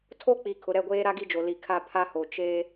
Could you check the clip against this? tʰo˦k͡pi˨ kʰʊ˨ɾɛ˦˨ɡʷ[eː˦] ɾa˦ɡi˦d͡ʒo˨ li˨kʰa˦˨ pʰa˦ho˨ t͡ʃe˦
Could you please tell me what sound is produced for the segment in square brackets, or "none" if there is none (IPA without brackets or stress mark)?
eː˦